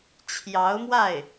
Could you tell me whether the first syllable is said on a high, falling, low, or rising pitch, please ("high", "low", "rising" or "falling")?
rising